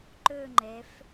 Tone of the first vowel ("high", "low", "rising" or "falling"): falling